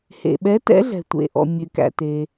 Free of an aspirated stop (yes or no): yes